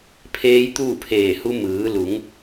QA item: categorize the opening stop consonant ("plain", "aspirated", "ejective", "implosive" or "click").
aspirated